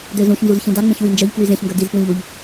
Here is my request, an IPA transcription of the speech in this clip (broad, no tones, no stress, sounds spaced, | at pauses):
d ø z ũ ç n z u z ç ĩ d a ŋ͡m ẽ ç w i n d͡ʒ œ ʎ k w y z ẽ ç ŋ ɡ œ d i z p w ĩ ʎ u ʎ